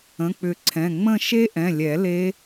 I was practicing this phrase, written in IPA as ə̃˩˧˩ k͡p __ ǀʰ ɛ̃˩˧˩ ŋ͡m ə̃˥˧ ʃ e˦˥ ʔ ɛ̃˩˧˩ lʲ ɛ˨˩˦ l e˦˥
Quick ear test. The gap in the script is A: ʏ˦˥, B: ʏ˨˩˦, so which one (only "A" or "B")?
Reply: B